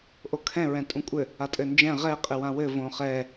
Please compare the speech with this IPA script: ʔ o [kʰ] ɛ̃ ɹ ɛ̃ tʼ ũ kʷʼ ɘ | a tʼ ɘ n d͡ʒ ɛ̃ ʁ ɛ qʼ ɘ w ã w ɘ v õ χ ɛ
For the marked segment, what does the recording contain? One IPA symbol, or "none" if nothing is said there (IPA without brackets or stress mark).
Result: kʰ